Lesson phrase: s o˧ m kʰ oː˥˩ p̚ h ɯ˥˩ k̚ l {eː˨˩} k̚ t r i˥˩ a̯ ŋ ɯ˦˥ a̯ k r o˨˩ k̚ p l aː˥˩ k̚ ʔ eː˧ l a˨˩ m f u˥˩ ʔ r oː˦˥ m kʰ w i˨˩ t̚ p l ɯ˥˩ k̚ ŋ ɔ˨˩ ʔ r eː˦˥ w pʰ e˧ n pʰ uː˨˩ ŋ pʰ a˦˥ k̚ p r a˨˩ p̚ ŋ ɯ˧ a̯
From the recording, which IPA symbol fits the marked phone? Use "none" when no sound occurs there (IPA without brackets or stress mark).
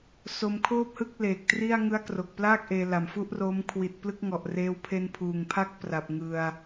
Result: eː˨˩